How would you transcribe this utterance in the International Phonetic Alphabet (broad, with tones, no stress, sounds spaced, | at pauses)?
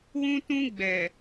w ũ˦ t ũ˦ ɡ͡b ɛ˨